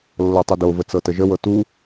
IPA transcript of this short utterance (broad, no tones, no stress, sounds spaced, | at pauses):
lː ɤ tˤ u d o v ə t͡s ɤ t ə ʒ ə w ɤ t u